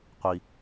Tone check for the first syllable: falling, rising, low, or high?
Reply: high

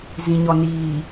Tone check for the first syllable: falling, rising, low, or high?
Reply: low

